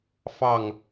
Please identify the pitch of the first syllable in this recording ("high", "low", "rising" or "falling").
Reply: falling